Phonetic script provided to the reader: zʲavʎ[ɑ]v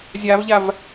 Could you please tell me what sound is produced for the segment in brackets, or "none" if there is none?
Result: a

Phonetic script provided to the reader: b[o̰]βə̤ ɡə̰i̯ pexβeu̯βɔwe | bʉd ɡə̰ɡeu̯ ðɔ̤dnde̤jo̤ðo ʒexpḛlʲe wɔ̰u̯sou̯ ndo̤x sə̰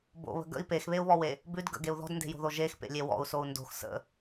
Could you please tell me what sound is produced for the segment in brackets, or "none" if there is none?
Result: o̰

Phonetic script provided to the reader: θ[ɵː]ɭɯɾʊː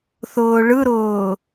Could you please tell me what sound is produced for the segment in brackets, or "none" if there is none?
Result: ʊː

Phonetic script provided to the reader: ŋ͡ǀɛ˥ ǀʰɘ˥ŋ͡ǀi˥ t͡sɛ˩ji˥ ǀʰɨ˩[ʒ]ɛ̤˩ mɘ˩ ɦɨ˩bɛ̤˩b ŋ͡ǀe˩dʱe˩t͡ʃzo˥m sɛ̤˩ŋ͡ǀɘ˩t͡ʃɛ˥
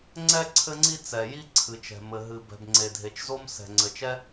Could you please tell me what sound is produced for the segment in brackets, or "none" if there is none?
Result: t͡ʃ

